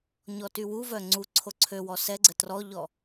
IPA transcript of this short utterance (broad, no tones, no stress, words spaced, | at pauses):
ɲɔtywuvœ ŋ͡ǀu ǀʰoǀʰøwɔ sɛɡ͡ǀə trɔʎɔ